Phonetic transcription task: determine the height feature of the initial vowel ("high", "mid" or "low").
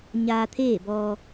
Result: low